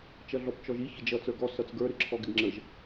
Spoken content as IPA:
t͡ʃ ʌ ɮ ɔ p t͡ʃ ɔ ʒ i ç ɪ d͡ʒ ʌ t͡s ə˞ ɡ ɔ s ʌ t͡s ɡ ə˞ ɾ ɪ ǁʰ ɔ ɡ ɪ ɡ ŋ͡ǁ ə ʒ

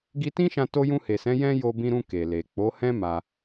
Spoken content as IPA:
ɡ i˧ t ĩ˦ ʃ ã˧ t o˧ j ũ˧ h e˨ s ɛ̃˨˦ j ɛ̃˦ j o˧ b ĩ˧ ɾ ũ˧ k e˨ l e˨ k͡p o˨˦ h ɛ̃˦ m a˧

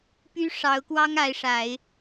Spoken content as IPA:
p y˥ ʂ ɑ˧˥ ʊ̯ k w ɑ˥ ŋ a˧˥ ɪ̯ ʂ a˨˩˦ ɪ̯

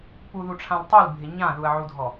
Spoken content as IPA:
p u ð u ʈ͡ʂʰ ã l tˤ u l bʱ ɪ ɲ ã ð u ɐ̯ ʕ u dʱ ɔ

